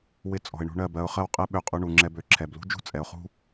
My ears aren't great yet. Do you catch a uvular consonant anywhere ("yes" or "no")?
yes